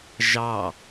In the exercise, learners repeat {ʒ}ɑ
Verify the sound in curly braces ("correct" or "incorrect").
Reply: correct